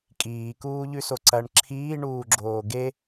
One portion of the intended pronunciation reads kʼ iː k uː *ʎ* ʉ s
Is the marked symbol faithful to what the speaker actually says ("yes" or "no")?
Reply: yes